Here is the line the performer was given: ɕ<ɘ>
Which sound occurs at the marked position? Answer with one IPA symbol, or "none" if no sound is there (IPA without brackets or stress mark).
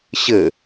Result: ɘ